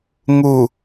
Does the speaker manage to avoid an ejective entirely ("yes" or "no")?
yes